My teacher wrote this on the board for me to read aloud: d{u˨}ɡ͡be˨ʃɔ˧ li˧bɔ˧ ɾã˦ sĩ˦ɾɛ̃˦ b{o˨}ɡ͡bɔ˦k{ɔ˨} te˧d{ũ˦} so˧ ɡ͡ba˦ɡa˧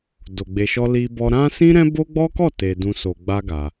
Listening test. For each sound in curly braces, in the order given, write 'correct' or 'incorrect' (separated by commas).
incorrect, incorrect, incorrect, incorrect